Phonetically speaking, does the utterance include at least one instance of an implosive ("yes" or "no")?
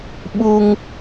yes